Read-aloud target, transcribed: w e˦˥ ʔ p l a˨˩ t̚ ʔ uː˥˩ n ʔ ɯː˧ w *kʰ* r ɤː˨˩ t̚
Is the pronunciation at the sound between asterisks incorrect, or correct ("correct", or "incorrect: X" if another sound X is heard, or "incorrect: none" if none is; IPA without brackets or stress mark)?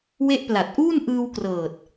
incorrect: k